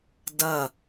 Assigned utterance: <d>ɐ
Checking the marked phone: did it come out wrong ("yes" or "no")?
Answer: no